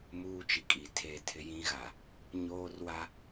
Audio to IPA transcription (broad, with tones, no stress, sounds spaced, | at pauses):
m uː˦ t͡ʃ i˨ kʼ i˨ tʰ e˦˨ tʰ ɪ˦ j ĩ˦ ɣ a˨ | ɲ oː˦ r w a˦